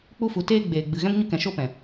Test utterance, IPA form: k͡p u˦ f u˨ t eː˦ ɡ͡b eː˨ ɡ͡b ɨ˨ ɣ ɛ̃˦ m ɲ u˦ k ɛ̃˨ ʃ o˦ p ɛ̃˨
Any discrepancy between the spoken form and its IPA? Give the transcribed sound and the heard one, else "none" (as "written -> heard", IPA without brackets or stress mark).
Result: none